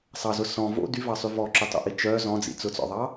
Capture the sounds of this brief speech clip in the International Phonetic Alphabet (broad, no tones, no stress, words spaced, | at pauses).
sˤɑzʊ sɔ̃ vo̰ dyvɑsˤy vɔǁœtˤo̰ʔi t͡ʃœ zɔ̃d͡zḭ t͡sʊt͡sɔ̰ðˤɑ